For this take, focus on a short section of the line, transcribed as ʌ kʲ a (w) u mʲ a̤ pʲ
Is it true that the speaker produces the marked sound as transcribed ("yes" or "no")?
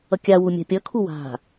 yes